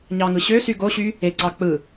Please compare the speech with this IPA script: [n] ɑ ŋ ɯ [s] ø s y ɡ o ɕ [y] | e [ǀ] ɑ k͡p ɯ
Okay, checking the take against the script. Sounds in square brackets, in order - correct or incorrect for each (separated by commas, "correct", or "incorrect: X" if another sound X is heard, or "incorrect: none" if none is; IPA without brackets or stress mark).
incorrect: ɲ, incorrect: ɕ, correct, correct